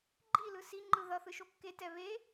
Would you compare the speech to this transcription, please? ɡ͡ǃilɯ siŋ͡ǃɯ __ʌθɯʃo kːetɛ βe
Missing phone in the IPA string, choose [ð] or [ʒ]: ð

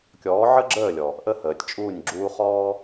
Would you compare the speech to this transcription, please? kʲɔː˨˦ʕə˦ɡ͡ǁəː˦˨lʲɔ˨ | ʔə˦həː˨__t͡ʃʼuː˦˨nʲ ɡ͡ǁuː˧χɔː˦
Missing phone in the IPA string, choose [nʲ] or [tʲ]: tʲ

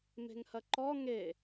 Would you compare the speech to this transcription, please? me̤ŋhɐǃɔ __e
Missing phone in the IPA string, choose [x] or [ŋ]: ŋ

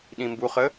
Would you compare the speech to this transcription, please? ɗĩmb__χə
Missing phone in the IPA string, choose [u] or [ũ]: u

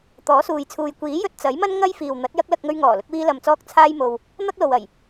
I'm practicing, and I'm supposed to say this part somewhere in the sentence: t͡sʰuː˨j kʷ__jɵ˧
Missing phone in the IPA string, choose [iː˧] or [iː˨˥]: iː˨˥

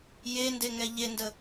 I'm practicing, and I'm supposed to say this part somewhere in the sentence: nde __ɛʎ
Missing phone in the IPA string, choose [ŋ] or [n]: ŋ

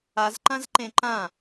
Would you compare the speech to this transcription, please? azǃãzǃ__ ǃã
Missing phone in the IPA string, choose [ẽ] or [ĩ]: ẽ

